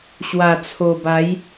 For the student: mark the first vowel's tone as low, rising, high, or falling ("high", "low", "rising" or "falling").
low